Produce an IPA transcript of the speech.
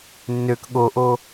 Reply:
nːøk ɠoʔo

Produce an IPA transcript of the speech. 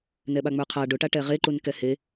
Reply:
nɛɓaŋ͡mə˞qʰa ɖʊʈaʈɛ ʁeǃun kɛhe

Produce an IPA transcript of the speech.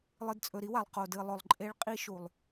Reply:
lˠɨ˨dt͡sʼɵ˨ɾi˦wa˨lˠ qo˨dɨ˨lˠɵ˨lˠ ǃʼe˦ɭ qʼi˦ʃu˨lˠ

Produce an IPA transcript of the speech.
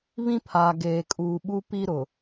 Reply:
βĩ˦pʰaː˨ ɡeː˨kʼuː˨ɓu˦ pi˦ɾʊ˨

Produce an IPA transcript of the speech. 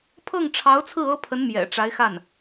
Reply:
pʰɤ˥˩ŋʈ͡ʂʰɑ˧˥ʊ̯t͡sʰɹ̩˥˩ ɤ˥pʰə˧˥n mjɛ̰˨˩ʈ͡ʂa˧˥ɪ̯xa˥˩n

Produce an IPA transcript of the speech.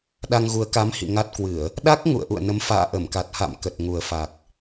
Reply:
ɗa˧ŋɣu˨˦ə̯ka˨˦mhḭ˧˨ ŋa˦˥t̚kwɨ˧˩˨ə̯ | ɗa˦˥k̚ ŋṵ˧˨ə̯ʔṵ˧˨ə̯nə˨˦m fa̰ː˧˨ʔə˧˩mka˨˩t̚ha̰˧˨m kə˨˩t̚ŋu˨˩ə̯fa˨˩k̚

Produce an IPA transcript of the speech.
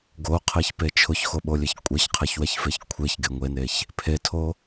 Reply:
ɡoqʰeçpe t͡ʃʰʊçxoɓolʲeç kʷʼɛçqʰeçwɛçfeç kʷʰeçɡeŋʷeneç | pʰetʰo

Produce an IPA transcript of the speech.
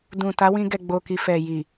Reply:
dũ˨ ta˨˦wĩ˧ɡɛ˨ ɡ͡bo˨ki˨ fɛ˨ji˨

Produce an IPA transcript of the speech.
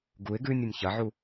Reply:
ɡuɪ̯ ɡʉnʲunʲ çɐʕu

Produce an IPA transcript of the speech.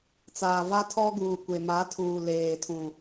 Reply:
t͡saː˨ va˦tʰɔ˦ɡuː˨ kʷe˨ma˨˦ tʰuː˨leː˨tʰũ˨

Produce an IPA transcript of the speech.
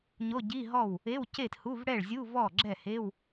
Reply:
ɲo˧˥˧ɟi˧˥˧ɦɔ˥˩w | e˧˥˧w ce˥˩thu˧˥˧v ɽɛ˥˩ɭzʲu˧˥˧ vɔ˥˩ɡ͡ǁɛ˥˩he˧˥˧w

